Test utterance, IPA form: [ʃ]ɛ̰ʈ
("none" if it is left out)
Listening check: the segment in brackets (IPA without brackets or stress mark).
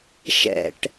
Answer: ʃ